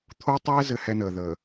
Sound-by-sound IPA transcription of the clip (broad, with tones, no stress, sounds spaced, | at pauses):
t̪ʰ o˦ tˤ ɛː˦ z ɘ˦ h ɛ˦ n əː˨ ð əː˨